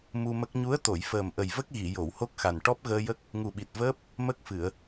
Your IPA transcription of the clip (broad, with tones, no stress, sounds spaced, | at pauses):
m u˧ m ə˦˥ k̚ ɲ u˧˥ ə̯ t̪ o˨˩˨ j f əː˨˩ m ʔ ə˨˩ j v ə˦˥ k̚ ɣ i˨˩˨ j o˨˩˨ w h o˦˥ k̚ x a˨˩ n ʈ ɔ˦˥ p̚ ɣ əː˧ j ə˦˥ k̚ | ŋ u˨˩ ɓ i˨˩ t̚ v əː˦˥ p̚ | m ə˦˥ k̚ f ɨ˨˩˨ ə̯